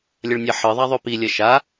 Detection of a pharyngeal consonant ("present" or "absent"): present